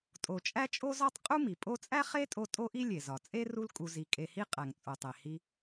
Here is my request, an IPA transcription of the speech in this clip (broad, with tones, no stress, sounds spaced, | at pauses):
tʼ o˩ t͡ʃʼ æ˦ t͡ʃʼ o˦ z ɒ˦ tˤ qʼ u˥ m i˩ pʼ o˦ t͡sʼ æ˥ χ e˥ tʼ o˦ tʼ o˥ ʔ i˥ lʲ e˩ z ɒ˩ t͡sʼ e˥ r u˦ l kʼ u˨ z i˨ kʼ e˨ h i˦ qʼ æ˩ ŋ t͡sʼ o˩ tˤ e˩ h i˦